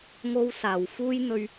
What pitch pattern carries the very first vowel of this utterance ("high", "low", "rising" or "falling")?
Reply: high